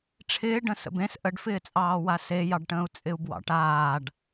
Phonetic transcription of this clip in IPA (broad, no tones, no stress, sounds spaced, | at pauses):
ʈ͡ʂʰ ɪː ɖ ə̃ s ə̰ b ẽ s ʔ ə ɖ f ɪː t͡sʼ ɑː w a s e j ɑ ɖ ʈ ə̃ː u̯ t͡sʼ ɪ u̯ b w ɑ̰ ʈ aː ɖ